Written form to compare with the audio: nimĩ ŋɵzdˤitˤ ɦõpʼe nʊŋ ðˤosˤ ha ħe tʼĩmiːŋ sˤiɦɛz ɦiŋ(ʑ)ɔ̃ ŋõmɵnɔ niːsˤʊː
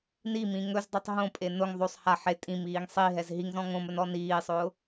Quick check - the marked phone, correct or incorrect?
incorrect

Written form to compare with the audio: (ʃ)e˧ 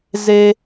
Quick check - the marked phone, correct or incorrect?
incorrect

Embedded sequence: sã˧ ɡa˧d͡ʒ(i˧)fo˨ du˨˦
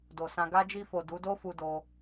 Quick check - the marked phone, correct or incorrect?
correct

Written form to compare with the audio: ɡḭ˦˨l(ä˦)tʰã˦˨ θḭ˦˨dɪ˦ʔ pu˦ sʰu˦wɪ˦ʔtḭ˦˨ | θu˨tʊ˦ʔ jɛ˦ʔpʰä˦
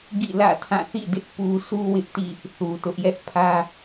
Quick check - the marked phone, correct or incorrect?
incorrect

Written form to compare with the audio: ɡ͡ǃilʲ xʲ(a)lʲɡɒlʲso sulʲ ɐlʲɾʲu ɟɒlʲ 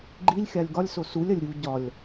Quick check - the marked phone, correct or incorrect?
correct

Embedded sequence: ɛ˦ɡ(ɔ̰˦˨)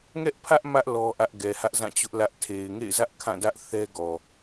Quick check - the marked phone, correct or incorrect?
incorrect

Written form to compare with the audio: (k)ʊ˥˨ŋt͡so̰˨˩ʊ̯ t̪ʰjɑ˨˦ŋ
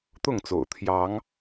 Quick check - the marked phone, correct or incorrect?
incorrect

